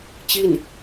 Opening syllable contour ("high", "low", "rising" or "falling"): falling